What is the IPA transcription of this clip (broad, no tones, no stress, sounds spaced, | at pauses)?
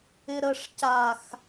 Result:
ɪ ɾ ə ʂ c a x